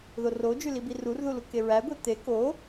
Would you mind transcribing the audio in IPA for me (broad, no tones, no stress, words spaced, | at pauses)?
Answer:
ðorod͡ʒy libirurðu lukeɹæɡʷe t̪e ko